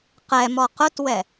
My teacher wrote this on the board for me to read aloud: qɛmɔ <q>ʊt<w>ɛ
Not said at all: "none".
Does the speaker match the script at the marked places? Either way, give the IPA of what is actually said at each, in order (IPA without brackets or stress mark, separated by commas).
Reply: q, w